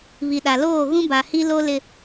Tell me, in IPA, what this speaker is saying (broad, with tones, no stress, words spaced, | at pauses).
βi˨ɗa˨ loː˦˨ ɣũ˦ba˨ hi˦lo˦ lɪ˦